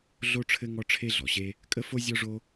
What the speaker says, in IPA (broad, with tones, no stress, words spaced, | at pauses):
ɮo˥ʈ͡ʂʰɘ˥ ŋɔ˥ʈ͡ʂʰe˥ɮɔ˩ɕe˥ | kʼə˥fo˥ zʲɔ˥ʐo˥